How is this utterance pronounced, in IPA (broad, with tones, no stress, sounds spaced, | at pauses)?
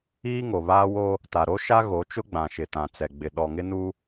iː˦ ŋ o˨ β aː˦ w o˦ | t a˨ ɾ o˦ ʃ a˦ ɣ o˨˦ t͡ʃ ʊ˦ ɡ͡b ã˨ ʃ ɪ˨ t ã˨ t͡s ɛ˨ ɡ͡b ɪ˨ ɗ ɔ˨ ŋ ɪ˦ n u˦